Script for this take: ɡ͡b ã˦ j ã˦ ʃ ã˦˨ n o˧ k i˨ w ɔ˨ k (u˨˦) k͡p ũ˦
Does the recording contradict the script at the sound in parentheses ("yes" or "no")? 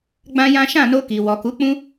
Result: no